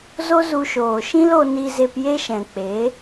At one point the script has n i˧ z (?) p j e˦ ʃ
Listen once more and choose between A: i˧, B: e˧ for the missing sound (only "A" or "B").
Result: B